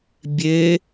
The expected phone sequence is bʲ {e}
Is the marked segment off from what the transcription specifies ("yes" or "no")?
no